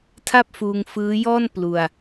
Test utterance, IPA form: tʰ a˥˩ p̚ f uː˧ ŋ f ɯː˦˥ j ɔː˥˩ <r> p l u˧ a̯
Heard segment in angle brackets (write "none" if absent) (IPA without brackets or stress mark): n